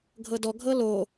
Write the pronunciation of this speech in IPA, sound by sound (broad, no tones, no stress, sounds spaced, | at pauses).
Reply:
ɡʱ ɤ d ɔ ɡʱ ɤ l o